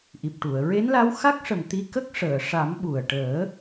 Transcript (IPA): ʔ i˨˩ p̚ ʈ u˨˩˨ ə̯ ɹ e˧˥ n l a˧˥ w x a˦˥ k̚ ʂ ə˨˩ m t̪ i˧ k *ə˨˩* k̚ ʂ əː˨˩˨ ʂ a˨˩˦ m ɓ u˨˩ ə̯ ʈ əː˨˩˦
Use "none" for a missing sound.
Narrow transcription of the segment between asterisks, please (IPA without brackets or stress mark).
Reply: ə˦˥